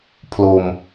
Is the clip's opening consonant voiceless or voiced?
voiceless